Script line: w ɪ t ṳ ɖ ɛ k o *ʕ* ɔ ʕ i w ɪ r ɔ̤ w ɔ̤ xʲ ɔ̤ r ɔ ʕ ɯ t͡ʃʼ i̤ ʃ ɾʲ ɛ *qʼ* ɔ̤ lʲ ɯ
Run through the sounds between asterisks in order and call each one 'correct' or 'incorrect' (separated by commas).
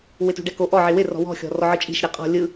incorrect, correct